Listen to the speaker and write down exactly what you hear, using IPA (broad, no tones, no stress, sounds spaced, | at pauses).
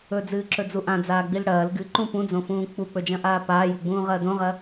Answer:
ɵ d͡z ɨː ǁ ɵ d͡z u ʔ ã d͡z aː ɡ͡b i l ɽ ɐː l ɡ ɨ ǃ ũ p ũ d͡z õ f ũː k͡p u k͡p ɵ d͡ʒ ɐ̃ ʔ aː p aː j u ɡ͡b ũː ʁ ɐː d õ ʁ ɐ